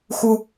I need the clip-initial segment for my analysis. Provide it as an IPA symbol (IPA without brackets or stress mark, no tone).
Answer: x